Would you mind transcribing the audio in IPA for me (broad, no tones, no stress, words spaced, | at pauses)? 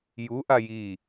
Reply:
ju ʔaji